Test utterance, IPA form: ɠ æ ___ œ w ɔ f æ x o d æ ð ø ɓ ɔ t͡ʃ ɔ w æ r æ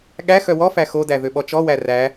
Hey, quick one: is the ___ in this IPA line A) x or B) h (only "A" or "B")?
A